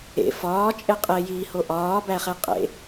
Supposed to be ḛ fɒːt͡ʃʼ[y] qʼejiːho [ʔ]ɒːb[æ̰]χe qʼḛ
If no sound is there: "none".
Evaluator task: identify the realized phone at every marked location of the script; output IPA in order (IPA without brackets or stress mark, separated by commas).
e, ʔ, æ